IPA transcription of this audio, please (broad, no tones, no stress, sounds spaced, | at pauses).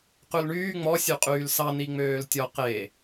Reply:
q ʉ l ɳ yː ŋ͡m ɔ sʲ ʉ qʼ yː l s ɑ n i ŋ͡m øː l tʲ ɔ q e